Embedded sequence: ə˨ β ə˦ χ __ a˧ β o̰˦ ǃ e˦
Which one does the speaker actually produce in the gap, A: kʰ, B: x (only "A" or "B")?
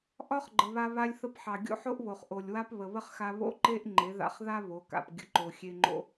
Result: B